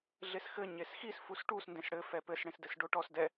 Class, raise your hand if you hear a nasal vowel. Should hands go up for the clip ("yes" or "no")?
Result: yes